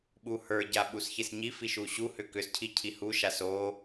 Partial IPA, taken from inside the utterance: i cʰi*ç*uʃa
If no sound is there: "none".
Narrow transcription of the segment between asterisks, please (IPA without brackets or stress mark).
h